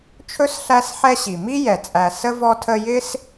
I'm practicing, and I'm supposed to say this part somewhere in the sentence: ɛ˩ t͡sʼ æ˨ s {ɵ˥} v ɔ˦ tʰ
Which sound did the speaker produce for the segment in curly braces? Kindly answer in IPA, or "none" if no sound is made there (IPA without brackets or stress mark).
ə˥